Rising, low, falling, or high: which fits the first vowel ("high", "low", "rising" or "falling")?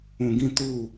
low